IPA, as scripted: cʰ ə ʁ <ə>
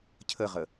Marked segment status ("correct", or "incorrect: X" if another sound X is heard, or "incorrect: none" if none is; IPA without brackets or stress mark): correct